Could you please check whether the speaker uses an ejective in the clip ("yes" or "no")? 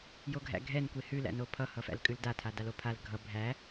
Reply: yes